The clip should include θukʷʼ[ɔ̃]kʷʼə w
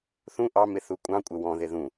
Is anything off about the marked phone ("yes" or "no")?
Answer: yes